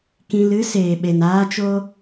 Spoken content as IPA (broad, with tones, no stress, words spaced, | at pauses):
kĩ˧lɨ˦ seː˨ɓe˨naː˧t͡ʃo˧